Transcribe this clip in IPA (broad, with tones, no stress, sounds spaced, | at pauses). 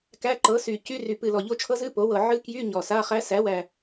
k æ˧˥˧ ǃ ɤ˩˥ s y˨˩ c y˧˥˧ r y˨˩ p ɨ˨˩ l ɔ˨˩ ʎ o˦˥ t͡ʃʰ ɤ˦˥ z ɨ˧˥˧ p o˩˥ w ɤ˨˩ ʕ ɨ˦˥ k j y˧˥˧ ɲ ɔ˨˩ s a˧˥˧ χ æ˦˥ s æ˩˥ w æ˨˩